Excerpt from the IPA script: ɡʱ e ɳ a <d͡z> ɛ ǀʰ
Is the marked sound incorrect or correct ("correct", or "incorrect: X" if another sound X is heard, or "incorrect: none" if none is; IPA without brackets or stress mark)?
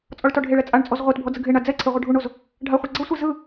correct